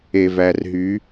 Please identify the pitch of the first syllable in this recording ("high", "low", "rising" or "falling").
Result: low